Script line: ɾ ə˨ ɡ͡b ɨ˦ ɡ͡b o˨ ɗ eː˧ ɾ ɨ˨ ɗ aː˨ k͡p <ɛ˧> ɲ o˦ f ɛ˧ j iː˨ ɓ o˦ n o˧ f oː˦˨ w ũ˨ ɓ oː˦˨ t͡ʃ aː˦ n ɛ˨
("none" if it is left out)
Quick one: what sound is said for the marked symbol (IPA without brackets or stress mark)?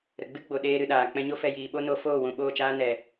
ɛ̃˧